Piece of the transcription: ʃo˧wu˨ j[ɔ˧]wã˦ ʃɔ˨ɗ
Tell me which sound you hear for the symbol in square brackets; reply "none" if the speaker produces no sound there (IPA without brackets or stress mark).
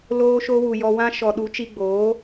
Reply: ɔ˧